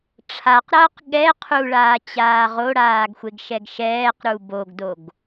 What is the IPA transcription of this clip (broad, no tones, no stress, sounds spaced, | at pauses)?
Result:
ʈ͡ʂʰ a q ɾ ʌː q ɠ ɛ qʰ u ɭ aː t͡ɕ aː ʁ o ɽ aː ɡ xʷ e ɡ ʃ ɛ ɡ ʃ ɛː q ɾ u b o ɡ d o ɡ